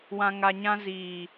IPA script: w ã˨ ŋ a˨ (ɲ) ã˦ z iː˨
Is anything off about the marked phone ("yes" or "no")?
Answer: no